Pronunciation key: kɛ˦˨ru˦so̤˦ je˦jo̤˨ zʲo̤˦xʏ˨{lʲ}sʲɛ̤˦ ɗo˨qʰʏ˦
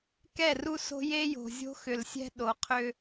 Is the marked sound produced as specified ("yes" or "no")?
no